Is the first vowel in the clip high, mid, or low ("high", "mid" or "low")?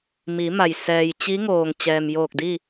high